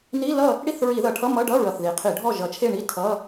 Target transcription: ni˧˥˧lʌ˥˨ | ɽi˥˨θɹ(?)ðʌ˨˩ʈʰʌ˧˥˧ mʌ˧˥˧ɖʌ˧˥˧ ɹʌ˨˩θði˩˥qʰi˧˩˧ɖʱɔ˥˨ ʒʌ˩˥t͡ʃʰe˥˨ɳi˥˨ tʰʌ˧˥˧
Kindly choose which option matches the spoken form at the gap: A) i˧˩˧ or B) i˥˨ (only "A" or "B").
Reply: A